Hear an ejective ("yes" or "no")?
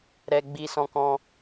no